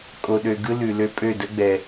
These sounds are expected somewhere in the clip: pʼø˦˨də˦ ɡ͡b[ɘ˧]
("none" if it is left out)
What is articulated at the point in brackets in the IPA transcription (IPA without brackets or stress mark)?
ɛ˧